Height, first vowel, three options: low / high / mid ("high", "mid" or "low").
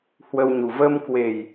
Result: mid